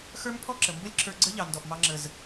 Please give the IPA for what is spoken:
x ə˞˦ m pʰ ɔ˦ ǁ ə˨ m b ə˦ lʲ ǁʰ ə˞˧ ɡ͡ǀ ə˦ ʎ ɑ˨ n d ɔ˨ ʔ m ɑ˧ ŋ͡ǁ ə˨ z

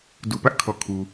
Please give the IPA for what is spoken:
d u˨ p ä˦ ʔ kʰ ɔ˨ kʰ u˨

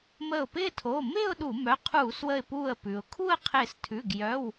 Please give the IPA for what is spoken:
m əː˧˩ ʊ̯ p ɪː˥˧ tʰ oː˩˧˩ m ɪː˥˧ ʊ̯ ɗ u˧˩˧ m œ˩˧˩ qʰ uː˧˩˧ s w ə˧˩ ɪ̯ p uː˧˩ ə̯ p ʉ˩ ʊ̯ kʰ u˥˧ ə̯ qʰ ɪː˧˩ s tʰ ʉ˩˧˩ ɡ j œ˩˧˩ w

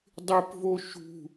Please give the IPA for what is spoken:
dˤ ɪ p v o ʃ ṳ

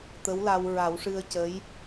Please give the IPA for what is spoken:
t̪ ə˧˥ w l a˧ w ɹ a˨˩˦ w ʂ ɨ˧ ə̯ c ə˧˥ j

